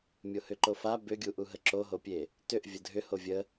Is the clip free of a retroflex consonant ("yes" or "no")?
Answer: yes